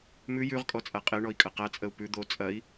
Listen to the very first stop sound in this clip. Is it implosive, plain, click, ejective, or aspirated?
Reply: ejective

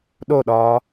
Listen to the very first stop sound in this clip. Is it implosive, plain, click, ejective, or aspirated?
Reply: implosive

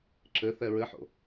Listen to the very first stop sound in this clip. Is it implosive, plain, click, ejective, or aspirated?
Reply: click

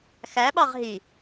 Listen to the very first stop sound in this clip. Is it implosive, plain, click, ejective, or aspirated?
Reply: implosive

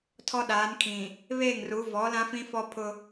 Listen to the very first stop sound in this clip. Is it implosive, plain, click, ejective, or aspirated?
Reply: aspirated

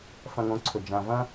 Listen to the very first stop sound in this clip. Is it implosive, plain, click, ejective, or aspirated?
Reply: click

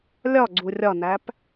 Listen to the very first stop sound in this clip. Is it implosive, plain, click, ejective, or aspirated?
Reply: click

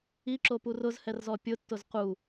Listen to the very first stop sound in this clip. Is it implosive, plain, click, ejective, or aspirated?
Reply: click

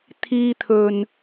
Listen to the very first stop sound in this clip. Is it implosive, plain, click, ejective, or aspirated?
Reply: aspirated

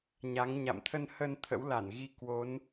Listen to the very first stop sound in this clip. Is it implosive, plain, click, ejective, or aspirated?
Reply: aspirated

